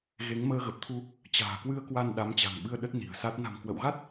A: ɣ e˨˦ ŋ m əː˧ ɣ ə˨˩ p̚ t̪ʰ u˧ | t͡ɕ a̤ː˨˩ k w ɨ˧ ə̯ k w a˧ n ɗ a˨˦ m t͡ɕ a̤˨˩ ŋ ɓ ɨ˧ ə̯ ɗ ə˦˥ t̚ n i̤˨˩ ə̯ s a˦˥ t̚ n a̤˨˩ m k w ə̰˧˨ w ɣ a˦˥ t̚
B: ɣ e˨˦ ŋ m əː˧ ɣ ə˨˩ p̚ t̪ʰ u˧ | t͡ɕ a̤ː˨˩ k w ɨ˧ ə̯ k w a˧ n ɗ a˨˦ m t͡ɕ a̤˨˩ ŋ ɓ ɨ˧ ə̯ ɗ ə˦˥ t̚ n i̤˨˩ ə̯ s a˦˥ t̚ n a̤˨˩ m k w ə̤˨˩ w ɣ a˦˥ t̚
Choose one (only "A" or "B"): A